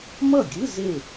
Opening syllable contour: falling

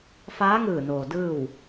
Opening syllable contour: rising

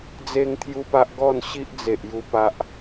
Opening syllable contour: high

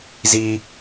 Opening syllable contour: high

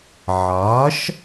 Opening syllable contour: rising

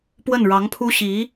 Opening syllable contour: falling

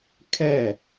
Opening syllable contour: falling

